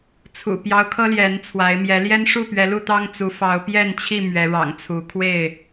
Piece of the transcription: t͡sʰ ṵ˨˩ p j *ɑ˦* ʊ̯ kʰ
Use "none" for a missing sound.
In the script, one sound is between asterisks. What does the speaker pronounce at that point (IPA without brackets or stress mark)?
ɑ˦